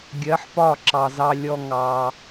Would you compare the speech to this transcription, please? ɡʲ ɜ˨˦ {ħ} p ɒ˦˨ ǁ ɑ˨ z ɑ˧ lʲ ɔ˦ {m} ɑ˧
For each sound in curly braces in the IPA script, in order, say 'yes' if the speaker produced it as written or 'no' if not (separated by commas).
yes, no